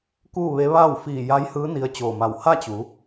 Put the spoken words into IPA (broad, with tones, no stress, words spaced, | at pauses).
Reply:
kuː˥˨ʋe˧˥ ʋaː˥˨w fiː˧˩ja˧˥jhɯː˧˥ ni˧ə̯t͡ɕoː˧˩ma˧˩w ha˥˨t͡ɕu˩˧